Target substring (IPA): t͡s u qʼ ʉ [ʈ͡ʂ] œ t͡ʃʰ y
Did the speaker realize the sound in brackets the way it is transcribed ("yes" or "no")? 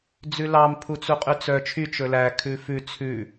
no